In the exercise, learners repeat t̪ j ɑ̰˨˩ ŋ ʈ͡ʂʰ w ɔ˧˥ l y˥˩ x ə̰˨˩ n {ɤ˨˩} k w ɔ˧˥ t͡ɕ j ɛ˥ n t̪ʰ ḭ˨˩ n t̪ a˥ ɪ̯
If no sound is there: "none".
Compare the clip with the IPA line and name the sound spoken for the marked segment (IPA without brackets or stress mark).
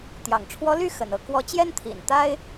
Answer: ɤ˥˩